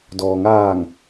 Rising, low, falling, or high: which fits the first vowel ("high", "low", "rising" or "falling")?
low